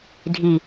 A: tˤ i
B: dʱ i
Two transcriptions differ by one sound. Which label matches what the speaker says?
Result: B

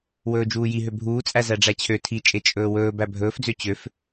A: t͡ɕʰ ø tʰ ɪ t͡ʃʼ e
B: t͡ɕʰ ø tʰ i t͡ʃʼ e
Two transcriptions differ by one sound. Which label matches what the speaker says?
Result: B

